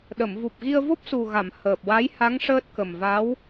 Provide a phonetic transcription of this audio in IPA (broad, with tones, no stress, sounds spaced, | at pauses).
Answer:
ɗ ə˨˩˨ m v u˨˩ p̚ ɣ i˧ ə̯ v o˦˥ p̚ s u˨˩ ɣ a˨˩˨ m h əː˨˩ p̚ w a˧˥ j h a˧˥ ŋ ʂ əː˦˥ t̚ k ə˨˩ m v a˧˥ w